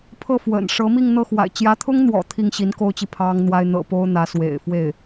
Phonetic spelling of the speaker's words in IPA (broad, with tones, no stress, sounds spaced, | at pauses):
pʰ ɤ˥˩ f w ə̰˨˩ n ʂ ɤ˧˥ m i˥˧ ŋ n̪ ɤ˥˩ x w a̰˨˩ ɪ̯ t͡ɕ j ä˧˥ t̪ʰ ʊ˥ ŋ n̪ w ɔ̰˨˩ t̪ʰ i˥˩ ŋ ɕ i˧˥ n k o˥ ʊ̯ t͡ɕ i˨ pʰ ɑ˥ ŋ n̪ w a˥ ɪ̯ n̪ ɤ̰˨˩ p o˥ ʊ̯ n̪ ä˧˥ s w ḛ˨˩ ɪ̯ f w e˥˩ ɪ̯